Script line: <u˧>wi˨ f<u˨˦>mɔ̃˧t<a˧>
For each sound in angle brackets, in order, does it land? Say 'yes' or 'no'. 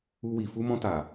yes, no, no

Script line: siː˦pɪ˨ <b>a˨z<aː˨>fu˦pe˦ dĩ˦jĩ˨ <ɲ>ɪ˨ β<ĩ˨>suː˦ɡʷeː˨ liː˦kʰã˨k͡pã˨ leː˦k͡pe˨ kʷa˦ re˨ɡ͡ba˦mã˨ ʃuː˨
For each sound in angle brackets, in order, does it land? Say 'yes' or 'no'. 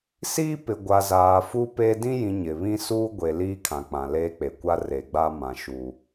no, yes, yes, no

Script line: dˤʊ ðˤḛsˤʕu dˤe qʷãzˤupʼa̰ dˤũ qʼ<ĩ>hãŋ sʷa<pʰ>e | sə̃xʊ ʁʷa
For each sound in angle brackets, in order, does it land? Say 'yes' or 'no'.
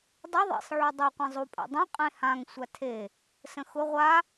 no, no

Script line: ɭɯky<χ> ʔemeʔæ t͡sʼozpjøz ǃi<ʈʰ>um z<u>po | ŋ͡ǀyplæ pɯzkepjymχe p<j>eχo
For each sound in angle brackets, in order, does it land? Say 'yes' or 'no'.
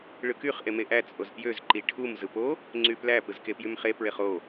yes, yes, no, no

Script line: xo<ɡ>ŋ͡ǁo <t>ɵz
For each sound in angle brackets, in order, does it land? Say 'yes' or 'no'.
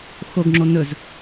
yes, no

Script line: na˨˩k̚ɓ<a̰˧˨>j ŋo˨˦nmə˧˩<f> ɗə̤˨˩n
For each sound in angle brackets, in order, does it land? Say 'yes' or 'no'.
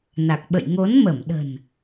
no, no

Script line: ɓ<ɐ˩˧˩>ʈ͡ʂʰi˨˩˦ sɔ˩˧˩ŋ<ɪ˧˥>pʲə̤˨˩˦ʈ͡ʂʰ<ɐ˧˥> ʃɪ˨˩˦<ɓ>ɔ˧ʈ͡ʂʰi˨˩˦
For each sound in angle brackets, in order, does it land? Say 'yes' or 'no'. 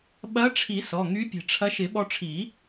no, no, yes, yes

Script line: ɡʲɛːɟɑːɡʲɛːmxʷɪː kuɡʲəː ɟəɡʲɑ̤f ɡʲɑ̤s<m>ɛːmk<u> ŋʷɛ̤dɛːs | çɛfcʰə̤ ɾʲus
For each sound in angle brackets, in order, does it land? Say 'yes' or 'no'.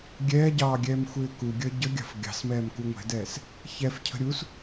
yes, yes

